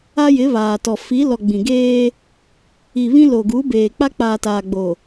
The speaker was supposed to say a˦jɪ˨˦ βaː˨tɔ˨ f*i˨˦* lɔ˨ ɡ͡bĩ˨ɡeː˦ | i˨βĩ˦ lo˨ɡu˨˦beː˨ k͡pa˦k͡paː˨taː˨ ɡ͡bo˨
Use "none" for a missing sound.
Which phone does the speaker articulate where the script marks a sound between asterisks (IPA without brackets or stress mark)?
i˨˦